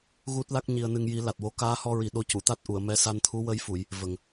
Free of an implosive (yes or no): no